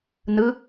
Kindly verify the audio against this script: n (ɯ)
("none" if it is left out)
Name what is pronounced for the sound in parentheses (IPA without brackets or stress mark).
ɯ